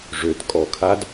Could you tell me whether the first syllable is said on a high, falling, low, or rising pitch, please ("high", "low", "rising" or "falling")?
low